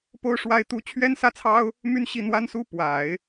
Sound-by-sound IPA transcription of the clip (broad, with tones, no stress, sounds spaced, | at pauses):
p o˥ ʊ̯ ʂ w a˥ ɪ̯ t̪ u˥ t͡ɕʰ ɥ ɛ˥ n s ä˥˩ t͡sʰ ɑ˥ ʊ̯ | m y˥ n ɕ i˥˩ n̪ w a˥ n s u˥ p w a˨˩˦ ɪ̯